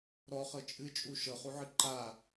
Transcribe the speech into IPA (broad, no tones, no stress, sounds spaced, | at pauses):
ɾ ɔ χ ɤ t͡ʃʼ ɨ t͡ʃʼ u ʃ ɤ χ u ʕ ɨ ǃ a